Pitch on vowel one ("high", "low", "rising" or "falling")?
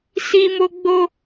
high